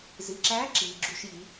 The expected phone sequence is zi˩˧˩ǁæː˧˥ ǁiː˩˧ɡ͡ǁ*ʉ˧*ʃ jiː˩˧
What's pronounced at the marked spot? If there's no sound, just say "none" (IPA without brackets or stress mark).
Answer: u˧